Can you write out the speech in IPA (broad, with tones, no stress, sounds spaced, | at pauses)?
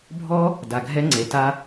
bʱ ɔ˦ | d a˨ ɡʱ ɛ˦ ŋ͡ǀ e˨ t a˦